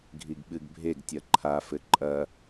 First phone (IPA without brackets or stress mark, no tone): ɡʱ